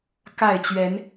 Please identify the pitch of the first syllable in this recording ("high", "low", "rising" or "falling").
falling